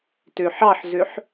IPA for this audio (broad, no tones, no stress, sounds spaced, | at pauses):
t ø ħ ɑ ħ z ø ħ